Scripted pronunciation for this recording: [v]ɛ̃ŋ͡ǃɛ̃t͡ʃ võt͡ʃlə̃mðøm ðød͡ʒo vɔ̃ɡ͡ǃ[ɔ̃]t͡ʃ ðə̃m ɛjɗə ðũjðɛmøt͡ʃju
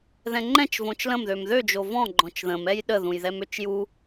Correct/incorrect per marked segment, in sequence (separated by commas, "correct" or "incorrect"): incorrect, correct